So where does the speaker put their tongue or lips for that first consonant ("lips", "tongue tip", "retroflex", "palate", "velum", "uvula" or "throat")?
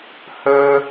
throat